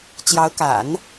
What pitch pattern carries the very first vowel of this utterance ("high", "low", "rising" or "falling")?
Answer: rising